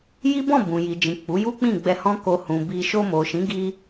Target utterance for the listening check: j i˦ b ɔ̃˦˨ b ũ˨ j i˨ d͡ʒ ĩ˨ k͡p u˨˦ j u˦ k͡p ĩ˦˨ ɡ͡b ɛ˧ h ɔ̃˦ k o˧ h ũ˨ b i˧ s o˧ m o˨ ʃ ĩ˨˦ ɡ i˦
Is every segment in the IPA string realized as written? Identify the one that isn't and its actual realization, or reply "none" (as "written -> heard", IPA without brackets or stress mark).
s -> ʃ